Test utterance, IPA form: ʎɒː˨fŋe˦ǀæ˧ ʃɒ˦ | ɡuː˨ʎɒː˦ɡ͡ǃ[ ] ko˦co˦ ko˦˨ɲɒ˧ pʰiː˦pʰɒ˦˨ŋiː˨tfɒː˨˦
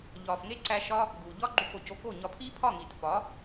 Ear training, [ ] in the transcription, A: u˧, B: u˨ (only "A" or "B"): A